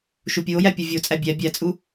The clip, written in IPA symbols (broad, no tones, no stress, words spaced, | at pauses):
ʃupʲuo̯jæ pʲuvʲot͡sʼæ bʲæ bʲæt͡sʼu